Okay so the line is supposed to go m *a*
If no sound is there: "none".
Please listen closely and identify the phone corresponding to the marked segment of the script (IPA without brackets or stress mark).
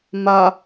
a